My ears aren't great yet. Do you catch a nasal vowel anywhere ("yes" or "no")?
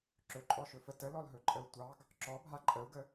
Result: no